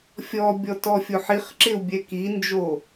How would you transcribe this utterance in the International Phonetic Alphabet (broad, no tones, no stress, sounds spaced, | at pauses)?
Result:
fʲ ɔ bʲ ɔ t ɔ fʲ o ħ i χ ǁ ɪ u̯ bʲ ɛ k i n d͡ʒ o